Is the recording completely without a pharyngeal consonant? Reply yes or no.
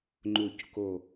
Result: yes